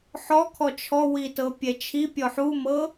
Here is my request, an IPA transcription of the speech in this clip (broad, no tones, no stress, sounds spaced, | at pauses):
ħ ɔ kʰ ɔ t͡ʃʰ ɔ w i t ɤ pʲ ɛ t͡ʃʰ i pʲ ɔ ħ u m ɤ